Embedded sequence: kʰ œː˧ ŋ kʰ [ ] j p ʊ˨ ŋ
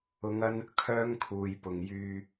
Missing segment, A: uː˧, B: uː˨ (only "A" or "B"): B